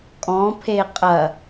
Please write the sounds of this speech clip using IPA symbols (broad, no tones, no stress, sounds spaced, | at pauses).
kʼ ɔ̃ pʰ e qʼ ɐ